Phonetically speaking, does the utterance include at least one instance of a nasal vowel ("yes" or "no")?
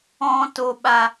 yes